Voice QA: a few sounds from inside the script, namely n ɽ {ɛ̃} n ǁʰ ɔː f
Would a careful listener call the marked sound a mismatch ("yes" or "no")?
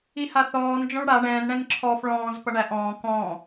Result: no